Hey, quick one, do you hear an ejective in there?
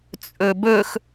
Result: yes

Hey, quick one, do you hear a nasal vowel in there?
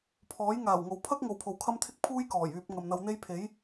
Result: no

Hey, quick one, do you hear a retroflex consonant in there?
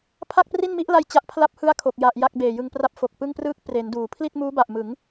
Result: no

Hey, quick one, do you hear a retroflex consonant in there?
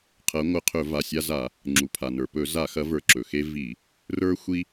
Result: no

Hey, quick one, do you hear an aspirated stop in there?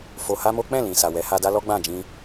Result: no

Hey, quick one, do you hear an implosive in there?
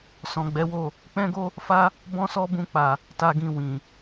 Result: no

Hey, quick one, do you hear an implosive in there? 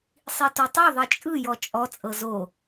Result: no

